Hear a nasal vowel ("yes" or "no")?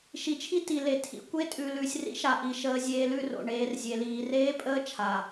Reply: no